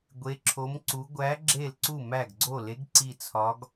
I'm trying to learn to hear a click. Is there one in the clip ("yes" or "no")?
yes